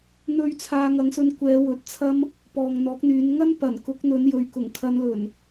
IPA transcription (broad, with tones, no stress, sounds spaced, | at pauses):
n̪ ɵ˧ ɥ t͡sʰ aː˧ ŋ ɐ˨˧ ŋ s ɵ˧ n kʷ ɛː˨˧ w ɵ˨˥ t̚ t͡sʰ ɐ˥ m | p ɔː˨ ŋ n̪ ɔː˨˥ k̚ n̪ yː˨˧ n ŋ ɐ˥ n p ɐ˨˩ n k ʊ˨˥ k̚ n̪ ɵ˨˧ n j ɵ˨ ɥ k ʊ˨˩ ŋ kʰ ɐ˨˧ n l ɵ˨˩ n